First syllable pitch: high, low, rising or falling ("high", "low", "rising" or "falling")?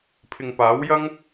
low